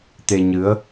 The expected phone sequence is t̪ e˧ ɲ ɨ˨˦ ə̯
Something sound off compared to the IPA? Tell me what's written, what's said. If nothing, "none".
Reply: none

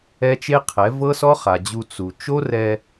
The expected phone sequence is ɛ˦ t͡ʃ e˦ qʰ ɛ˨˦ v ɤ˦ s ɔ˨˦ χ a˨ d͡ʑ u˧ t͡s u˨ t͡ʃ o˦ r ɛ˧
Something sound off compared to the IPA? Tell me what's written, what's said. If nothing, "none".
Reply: ɔ˨˦ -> ɔ˦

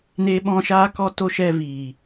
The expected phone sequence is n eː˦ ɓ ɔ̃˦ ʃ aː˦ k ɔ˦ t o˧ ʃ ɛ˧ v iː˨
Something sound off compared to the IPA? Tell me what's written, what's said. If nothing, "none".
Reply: none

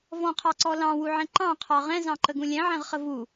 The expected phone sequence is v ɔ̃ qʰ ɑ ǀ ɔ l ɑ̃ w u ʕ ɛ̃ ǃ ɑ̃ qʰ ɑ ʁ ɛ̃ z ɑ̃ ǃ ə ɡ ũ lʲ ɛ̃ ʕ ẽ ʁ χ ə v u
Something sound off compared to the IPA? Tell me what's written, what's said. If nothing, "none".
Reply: ẽ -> ɛ̃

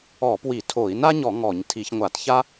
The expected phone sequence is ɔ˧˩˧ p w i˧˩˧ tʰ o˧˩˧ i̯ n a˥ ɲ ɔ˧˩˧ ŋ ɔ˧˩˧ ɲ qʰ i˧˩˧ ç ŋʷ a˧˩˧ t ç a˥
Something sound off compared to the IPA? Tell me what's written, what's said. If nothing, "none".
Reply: qʰ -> tʰ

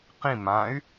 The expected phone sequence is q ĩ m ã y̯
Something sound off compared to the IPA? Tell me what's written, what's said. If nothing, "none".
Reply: none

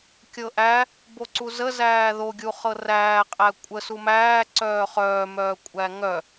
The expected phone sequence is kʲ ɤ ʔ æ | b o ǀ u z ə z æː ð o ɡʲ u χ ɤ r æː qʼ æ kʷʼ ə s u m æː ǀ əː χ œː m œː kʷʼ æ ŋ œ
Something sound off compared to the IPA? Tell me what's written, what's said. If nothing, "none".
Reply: əː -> œː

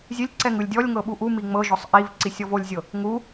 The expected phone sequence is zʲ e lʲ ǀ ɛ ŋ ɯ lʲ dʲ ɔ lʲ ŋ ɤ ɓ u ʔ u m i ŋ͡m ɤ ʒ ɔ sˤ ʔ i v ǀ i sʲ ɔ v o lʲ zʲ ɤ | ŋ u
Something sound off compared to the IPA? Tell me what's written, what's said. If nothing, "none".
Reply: none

